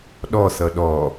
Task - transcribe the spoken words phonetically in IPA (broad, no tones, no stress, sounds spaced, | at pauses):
ɗ ɔ θ ʌ ɗ ɔ